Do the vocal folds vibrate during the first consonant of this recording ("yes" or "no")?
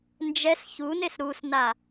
yes